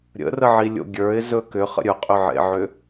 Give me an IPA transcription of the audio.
ɾʲə̰rəʕi lʲo̰ɡʲə˞ɪ̯zɵ kʏχə̰ ɾʲɵqʼʏʕḛʕʏ

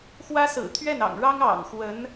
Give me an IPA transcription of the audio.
xwä˥sɹ̩˨˩ t̪ʰɥɛ˥˩nɑ̰˨˩ŋɻɑ˥ŋ ɑ̰˨˩ŋxwə˧˥n

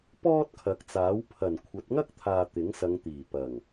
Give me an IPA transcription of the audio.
pɔː˥t̚kʰɐ˨˥k̚t͡saː˨˥w pʰɐ˨˩nkʷʰɐ˨˥t̚ŋɐ˥k̚t̪ʰaː˨ t̪ɪ˨˥ŋ sɐ˨˧ŋt̪iː˨˩pɐ˨˩ŋ

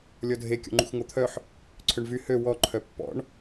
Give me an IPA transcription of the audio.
lʲɔdʱe kʲɔ̰ŋ͡ǃṵxŋot̪ʰœħ | ǀʰøɳvy hø wɔ ǃʰœpːɔ̰ɳ

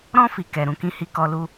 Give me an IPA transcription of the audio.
ɾɔ̃˧fi˨ kɛ˨ɾũ˨kĩ˧hi˧ kɔ˧lu˦

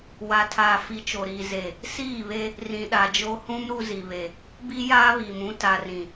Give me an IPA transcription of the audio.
wa˨tʰaː˨fi˨ t͡ʃo˨ɾiː˨ ze˨ | siː˦˨βe˦ | rĩ˨ɗa˨d͡ʒo˦ hũ˦m ɾu˦zi˨βe˨ | bi˦jaː˦βiː˨mũ˦ ta˨rĩ˨

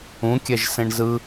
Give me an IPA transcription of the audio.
ũkʲɛʒ sẽɳzɯ

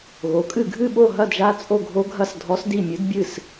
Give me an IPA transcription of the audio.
ɣo˩˥kʼɨ˥˩ ɡʱɨ˥˩ɓo˥˩ɦɐ˥˩dʒa˧˥ t͡sʼo˥˩ɡʱo˧˥ ɡʱɐ˥˩s dʱɔ˧˥sdi˥˩mʲɨ˧˥d bʲɨ˥˩s

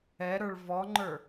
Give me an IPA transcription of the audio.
ɛɾə˞ɭ vɔŋ͡ǃə˞

